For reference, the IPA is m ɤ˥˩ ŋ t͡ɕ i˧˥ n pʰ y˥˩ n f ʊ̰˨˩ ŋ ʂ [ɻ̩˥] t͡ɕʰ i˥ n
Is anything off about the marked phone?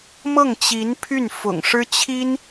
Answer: no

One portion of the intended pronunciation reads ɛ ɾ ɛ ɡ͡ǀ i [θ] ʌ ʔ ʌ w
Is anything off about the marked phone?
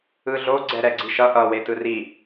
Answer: yes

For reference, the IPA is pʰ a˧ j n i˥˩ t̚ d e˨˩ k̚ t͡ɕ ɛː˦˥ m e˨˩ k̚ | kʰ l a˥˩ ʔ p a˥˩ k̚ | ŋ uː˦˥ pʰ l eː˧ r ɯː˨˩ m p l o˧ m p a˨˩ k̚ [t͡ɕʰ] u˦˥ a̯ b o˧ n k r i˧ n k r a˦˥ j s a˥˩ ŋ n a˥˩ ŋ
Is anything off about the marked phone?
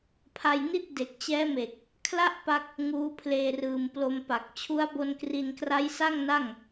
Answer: no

